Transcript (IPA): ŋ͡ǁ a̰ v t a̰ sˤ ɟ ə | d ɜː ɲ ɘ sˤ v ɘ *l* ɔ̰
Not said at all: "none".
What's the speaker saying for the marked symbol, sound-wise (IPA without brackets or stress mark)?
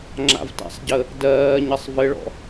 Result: ɭ